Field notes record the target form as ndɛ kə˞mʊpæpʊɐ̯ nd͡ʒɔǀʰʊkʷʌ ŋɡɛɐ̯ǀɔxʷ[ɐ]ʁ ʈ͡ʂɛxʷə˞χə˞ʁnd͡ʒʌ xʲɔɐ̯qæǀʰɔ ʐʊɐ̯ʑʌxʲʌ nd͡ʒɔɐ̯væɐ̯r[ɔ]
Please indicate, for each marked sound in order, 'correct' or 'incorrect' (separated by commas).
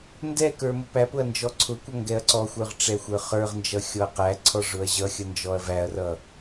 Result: incorrect, incorrect